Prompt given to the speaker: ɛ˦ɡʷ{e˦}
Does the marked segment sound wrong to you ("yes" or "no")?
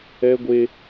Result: no